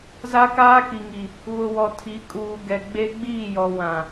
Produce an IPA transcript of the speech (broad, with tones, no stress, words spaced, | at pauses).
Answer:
za˦kaː˦ki˨ŋi˨ | βʊ˨wɔ˨ tʰi˨˦kʼuː˨ ɡɛ˨ ɡ͡be˦ɡ͡biː˦˨jɔ˨ wã˨